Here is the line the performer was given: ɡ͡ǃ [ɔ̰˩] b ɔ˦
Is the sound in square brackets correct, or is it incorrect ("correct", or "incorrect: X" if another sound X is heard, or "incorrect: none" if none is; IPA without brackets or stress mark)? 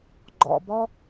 correct